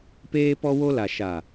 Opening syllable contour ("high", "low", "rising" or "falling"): high